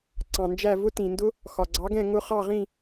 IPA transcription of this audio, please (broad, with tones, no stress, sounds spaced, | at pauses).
ǀ ɑ̃˩ n d͡ʒ æ˥˩ v ʊ˦˥ t ĩ˩ n d ʊ˦˥ | x ɒ˩ ɡ͡ǀ ɑ˩˥ ɡ ɛ̃˥˩ ŋ ʊ˦˥ χ ɑ˥˩ ʁ ĩ˥˩